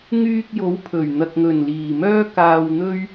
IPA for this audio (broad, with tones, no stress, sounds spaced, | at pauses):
ŋ yː˧ k̚ j o˨˥ w pʰ ɵ˨˩ ɥ n̪ ɐ˨ k̚ ŋ ɵ˨˩ n l iː˨˩ m œː˥ k aː˧ w n̪ ɵ˥ ɥ